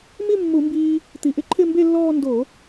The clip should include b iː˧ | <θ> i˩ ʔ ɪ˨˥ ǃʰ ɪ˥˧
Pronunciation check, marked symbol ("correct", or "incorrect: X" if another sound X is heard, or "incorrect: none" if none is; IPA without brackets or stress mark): incorrect: t̪